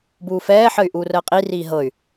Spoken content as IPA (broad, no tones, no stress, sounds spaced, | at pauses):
b uː f ɛː ħ ə y̯ ʔ uː r əː qʼ i r iː ɦ ɤ y̯